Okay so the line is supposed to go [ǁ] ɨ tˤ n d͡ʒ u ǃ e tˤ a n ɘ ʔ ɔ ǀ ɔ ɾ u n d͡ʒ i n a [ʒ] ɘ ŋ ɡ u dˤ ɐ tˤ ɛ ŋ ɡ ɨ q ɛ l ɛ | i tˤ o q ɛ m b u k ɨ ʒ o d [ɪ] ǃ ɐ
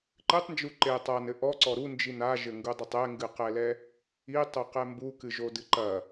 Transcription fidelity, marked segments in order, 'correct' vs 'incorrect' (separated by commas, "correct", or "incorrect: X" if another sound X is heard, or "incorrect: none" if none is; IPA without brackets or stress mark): incorrect: ǃ, correct, incorrect: ɨ